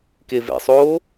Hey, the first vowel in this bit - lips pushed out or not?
no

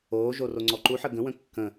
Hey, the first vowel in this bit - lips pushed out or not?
yes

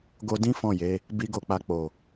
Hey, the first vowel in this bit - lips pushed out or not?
yes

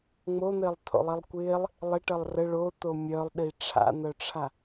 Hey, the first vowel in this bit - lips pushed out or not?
yes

